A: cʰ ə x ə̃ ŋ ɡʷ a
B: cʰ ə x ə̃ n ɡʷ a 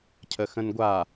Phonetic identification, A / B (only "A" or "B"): B